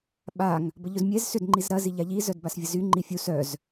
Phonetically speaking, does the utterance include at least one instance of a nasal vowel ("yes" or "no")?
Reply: no